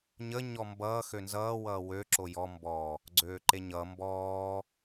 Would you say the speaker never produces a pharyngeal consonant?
yes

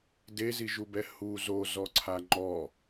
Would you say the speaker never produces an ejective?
yes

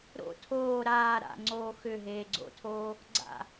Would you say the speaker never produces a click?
no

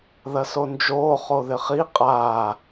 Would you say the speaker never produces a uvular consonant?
no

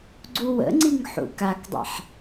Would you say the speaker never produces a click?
no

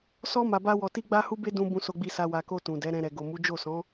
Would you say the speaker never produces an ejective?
yes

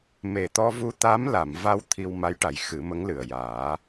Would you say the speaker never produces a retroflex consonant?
no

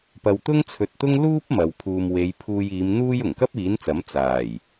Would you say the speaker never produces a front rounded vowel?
yes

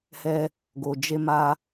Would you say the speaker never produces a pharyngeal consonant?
yes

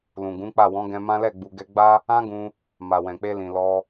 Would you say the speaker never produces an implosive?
yes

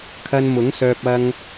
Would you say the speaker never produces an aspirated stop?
no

